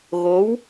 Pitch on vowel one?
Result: rising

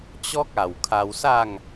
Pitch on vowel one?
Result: high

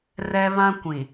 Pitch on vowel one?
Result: high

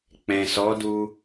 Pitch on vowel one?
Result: low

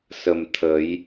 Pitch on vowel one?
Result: low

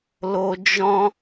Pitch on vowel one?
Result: high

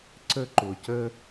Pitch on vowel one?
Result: high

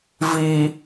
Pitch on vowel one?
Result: low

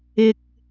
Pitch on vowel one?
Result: low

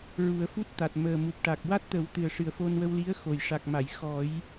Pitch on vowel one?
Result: low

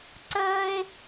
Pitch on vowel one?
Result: high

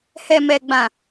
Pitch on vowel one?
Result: low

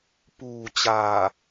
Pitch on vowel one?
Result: low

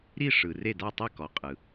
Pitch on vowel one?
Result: falling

